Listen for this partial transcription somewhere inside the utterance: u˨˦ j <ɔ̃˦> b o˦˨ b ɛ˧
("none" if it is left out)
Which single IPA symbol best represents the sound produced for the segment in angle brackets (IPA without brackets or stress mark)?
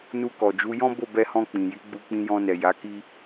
ɔ̃˦